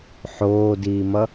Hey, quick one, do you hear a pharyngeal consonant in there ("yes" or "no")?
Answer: yes